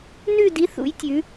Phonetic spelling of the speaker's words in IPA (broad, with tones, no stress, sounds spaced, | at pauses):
n ʉ˦˨ d i˨˥ θ ṵ˩˧ j tʲ ʉ˩˧